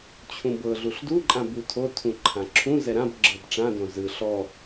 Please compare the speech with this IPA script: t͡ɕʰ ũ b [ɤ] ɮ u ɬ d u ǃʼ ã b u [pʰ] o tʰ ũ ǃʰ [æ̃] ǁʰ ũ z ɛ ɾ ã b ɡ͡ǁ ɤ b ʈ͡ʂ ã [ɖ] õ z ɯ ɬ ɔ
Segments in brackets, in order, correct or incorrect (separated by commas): correct, incorrect, incorrect, incorrect